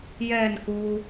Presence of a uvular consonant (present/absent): absent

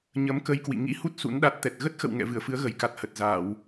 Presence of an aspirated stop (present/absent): absent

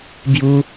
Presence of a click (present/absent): absent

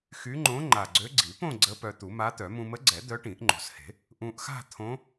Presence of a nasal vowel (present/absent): present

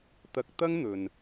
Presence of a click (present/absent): absent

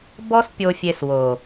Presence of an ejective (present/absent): absent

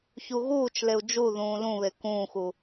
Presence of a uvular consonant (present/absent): absent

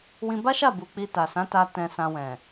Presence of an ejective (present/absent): absent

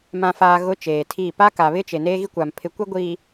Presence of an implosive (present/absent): absent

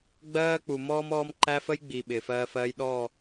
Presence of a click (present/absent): present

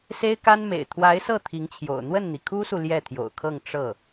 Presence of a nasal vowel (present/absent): absent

